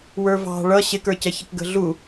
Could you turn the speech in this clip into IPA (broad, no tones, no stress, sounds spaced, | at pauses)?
w ə˞ v ɑ̤ ɭ ʌ ɕ ɪ k ə˞ c ɛ ç ɪ k ɡ ə̤ ɮ u